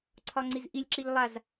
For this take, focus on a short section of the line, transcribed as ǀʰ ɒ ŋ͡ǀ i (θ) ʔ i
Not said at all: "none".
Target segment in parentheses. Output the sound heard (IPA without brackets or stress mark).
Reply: z